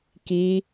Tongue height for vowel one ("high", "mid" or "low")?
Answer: high